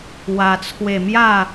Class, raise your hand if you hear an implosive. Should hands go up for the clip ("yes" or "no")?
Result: no